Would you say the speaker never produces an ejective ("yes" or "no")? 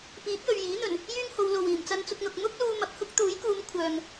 yes